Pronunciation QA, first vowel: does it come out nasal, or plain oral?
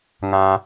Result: nasal